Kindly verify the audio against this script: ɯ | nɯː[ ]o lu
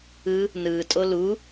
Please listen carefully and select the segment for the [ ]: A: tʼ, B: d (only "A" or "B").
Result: A